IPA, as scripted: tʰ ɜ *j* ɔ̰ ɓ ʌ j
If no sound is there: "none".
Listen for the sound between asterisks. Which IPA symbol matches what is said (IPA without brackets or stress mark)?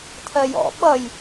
j